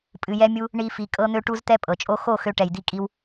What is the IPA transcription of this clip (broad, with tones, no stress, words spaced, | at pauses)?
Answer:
pʼɨ˧jɛ˦mʲu˦ | ɳi˦fi˧ kʼɤ˦n̪ø˦ʈu˦zt̪ɛ˦ pʼɤ˨t͡ʃʼo˦ xo˦˨xø˧ ʈɛ˨jd̪i˧kʼi˧w